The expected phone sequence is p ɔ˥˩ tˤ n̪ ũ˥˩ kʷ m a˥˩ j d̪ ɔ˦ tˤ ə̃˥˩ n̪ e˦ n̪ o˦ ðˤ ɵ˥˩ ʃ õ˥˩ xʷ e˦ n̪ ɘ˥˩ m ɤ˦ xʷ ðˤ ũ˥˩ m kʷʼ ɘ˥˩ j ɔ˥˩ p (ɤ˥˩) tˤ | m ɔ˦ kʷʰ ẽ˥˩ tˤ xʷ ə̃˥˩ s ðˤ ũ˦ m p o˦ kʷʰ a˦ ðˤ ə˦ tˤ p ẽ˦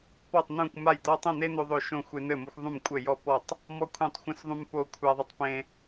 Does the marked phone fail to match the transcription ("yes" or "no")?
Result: yes